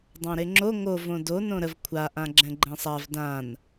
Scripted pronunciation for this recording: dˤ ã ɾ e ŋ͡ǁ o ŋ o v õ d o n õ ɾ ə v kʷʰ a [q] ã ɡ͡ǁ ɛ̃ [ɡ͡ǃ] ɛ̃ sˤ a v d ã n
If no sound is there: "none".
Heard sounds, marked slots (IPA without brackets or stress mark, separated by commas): ʔ, ɡ͡ǃ